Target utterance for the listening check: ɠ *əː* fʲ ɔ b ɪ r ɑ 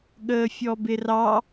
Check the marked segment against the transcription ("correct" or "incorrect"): correct